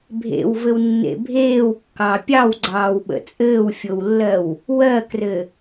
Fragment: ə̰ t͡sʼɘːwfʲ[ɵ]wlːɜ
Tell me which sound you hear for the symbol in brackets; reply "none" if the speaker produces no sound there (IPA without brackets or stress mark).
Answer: o